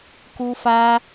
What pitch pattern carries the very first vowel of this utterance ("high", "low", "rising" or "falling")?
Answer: high